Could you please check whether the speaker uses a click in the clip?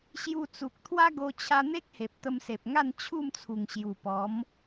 no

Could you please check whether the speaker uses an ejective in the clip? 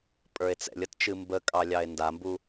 yes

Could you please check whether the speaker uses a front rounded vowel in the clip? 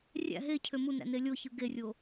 yes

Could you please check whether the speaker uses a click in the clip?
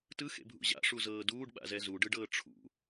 no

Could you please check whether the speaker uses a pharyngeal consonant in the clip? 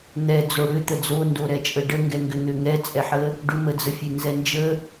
yes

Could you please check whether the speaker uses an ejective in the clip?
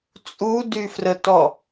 yes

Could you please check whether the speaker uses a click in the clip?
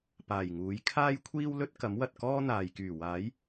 no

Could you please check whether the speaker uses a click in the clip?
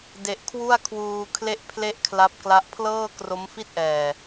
no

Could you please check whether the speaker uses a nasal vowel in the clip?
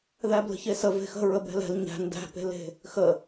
no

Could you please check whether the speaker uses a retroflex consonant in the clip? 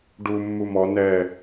yes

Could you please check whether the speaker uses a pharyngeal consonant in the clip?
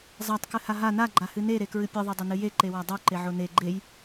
yes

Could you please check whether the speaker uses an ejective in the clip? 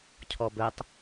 no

